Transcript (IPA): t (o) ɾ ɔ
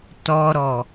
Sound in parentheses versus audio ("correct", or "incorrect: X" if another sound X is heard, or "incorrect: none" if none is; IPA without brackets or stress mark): incorrect: ɔ